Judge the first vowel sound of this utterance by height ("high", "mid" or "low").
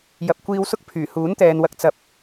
low